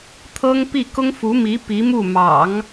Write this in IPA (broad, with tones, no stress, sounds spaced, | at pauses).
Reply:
t̪ʰ ɤ˥ ŋ p i˥˩ k ʊ˥ ŋ f u˧˥ m i˧˥ p i˧˥ m u˥˩ m ɑ̰˨˩˦ ŋ